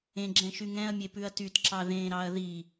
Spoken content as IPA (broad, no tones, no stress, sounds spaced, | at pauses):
ẽ ɡ͡ǁ ɛ̃ ʃ y ŋ ɛ̃ ɐ̯ mʲ e p ʉ ɐ̯ t y t ǁ ɑ ð ẽ ɾ ɑ ɐ̯ ð i